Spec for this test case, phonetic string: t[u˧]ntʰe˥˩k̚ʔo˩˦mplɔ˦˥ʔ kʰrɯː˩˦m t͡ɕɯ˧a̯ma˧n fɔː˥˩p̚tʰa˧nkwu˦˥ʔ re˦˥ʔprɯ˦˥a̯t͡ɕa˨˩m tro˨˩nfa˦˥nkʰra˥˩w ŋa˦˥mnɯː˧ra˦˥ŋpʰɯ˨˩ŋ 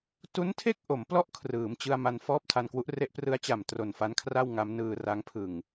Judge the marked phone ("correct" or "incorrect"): incorrect